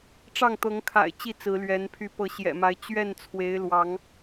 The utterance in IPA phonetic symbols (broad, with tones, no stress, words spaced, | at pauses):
ʈ͡ʂɑ˥˨ŋt̪ɤ˨˦ŋkʰa̰˨˩ɪ̯ t͡ɕi˥˨t͡sɹ̩˨˦lɥɛ˨˦n pʰy˨˦pɤ˨˦ɕjɛ̰˨˩ma˨˦ɪ̯ t͡ɕɥɛ˥˨n t͡sʰwe˨˦ɪ̯lwɑ˨˦ŋ